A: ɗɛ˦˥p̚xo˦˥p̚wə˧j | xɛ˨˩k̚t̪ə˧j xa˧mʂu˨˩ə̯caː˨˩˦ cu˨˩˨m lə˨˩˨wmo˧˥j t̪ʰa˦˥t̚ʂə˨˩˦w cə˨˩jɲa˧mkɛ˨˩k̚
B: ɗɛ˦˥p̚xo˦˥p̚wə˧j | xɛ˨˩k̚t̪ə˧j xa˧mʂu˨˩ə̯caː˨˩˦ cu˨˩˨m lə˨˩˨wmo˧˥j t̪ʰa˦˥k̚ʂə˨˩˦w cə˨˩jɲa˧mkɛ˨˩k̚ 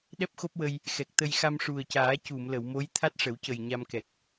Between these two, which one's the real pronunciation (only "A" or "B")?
A